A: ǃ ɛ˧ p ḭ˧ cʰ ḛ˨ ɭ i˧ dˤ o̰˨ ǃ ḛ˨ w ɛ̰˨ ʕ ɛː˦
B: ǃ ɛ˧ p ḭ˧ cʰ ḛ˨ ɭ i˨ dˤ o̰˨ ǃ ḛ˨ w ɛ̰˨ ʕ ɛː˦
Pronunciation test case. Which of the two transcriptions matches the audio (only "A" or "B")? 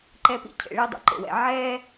A